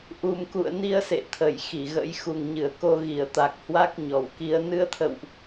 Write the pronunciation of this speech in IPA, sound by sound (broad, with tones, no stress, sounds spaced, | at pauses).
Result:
ʔ u˨˩ m k ṵ˧˨ ə̯ n i˧ ə̯ s ḛ˧˨ t̪ʰ ə˧˩ j x i˧˩ ɣ ə̰˧˥ j x u˨˩ ŋ ɲ ɨ˧˩ ə̯ k o˧ ɣ i˧˩ ə̯ t̪ a˨˩ k̚ h w a˦˥ k̚ ɲ ɔ˧˩ w k i˧ ə̯ n ɨ˧ ə̯ t̪ʰ ə̰˧˨ w ʔ